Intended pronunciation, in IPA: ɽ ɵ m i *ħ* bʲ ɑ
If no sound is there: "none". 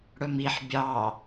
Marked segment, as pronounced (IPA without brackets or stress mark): ħ